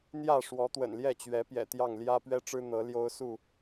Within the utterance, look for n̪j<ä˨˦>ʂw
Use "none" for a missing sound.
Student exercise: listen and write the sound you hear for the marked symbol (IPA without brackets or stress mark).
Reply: ä˥˨